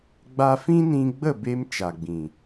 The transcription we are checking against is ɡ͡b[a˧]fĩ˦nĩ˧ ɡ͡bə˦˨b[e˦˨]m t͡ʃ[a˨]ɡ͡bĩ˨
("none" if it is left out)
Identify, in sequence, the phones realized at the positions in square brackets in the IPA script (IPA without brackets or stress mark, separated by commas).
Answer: a˧, e˧, a˨